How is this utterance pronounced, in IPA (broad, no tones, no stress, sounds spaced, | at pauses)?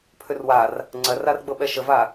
pʰ ʏ r w a r | ŋ͡ǀ ɜ r a r ɡ͡b ɤ ɓ ɛ ʃ ə v a